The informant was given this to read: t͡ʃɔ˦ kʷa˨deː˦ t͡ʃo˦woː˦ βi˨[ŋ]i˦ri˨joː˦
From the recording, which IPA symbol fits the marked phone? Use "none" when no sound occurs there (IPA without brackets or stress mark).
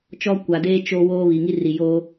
ŋ